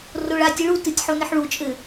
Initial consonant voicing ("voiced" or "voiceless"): voiced